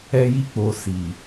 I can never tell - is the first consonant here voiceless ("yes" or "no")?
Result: no